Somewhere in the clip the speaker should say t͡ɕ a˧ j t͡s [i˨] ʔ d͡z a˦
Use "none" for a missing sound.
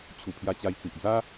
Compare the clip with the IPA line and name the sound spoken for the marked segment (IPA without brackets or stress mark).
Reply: i˨